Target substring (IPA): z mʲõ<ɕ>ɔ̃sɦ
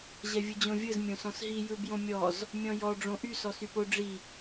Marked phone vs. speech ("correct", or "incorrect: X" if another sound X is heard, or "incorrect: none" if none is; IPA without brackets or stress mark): incorrect: s